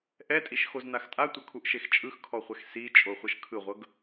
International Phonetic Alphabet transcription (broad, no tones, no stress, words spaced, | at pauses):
ʔɛtʼiʃxoznax tʼatʷɤkʰuʔʃex t͡ʃʼɯxkʰɔχʷɛx si t͡ʃʼoχʷɤʃkʰɯʁʷɤɡ